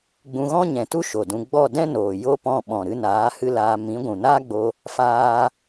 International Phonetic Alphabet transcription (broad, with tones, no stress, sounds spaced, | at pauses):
ɡ͡b ũ˧ ɣ ɔ̃˦ ɲ ɛ̃˨ t u˦ ʃ o˨ d ũ˧ ɡ͡b ɔ˦˨ d ɛ̃˦ n oː˨ j o˦ p ɔ̃˦˨ ɓ ɔ̃˨ ɾ ɨ˧ n aː˨˦ h ɨ˦ l aː˧ m ĩ˨˦ ɡʷ ũ˨ n aː˦ ɡ͡b o˧ | f aː˧